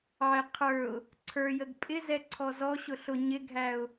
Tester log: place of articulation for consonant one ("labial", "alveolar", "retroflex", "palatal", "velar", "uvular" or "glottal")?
uvular